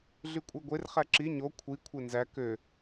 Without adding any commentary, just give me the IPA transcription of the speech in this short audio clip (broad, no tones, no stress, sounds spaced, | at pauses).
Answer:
ɮ y kʷʼ e ɡʷ e r χ æ ǁ i ɲ o kʷʰ i kʷʰ e n z æ k ø